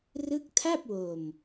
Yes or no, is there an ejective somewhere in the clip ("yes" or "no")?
no